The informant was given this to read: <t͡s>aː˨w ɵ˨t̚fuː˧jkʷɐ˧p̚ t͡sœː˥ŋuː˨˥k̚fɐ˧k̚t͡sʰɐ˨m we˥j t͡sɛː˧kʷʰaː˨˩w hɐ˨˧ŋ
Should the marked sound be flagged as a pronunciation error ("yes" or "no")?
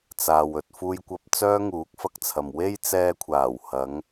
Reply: no